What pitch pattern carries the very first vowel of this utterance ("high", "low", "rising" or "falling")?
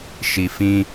low